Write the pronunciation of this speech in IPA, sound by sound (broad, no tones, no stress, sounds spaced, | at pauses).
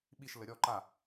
ɓ i ʃ l ə ɾʲ ɔ ǃ a